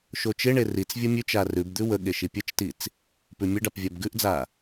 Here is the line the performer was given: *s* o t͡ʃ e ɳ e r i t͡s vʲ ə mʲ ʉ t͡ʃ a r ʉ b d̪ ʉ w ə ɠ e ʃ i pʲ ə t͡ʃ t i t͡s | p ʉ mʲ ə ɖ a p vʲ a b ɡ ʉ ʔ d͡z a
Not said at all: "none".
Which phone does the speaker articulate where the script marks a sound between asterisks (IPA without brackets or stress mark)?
ʃ